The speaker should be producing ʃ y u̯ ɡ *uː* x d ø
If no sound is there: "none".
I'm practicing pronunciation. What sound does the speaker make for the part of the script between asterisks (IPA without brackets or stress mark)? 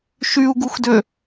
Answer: u